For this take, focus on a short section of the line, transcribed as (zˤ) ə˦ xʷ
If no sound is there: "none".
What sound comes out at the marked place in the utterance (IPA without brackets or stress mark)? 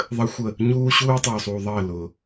ðˤ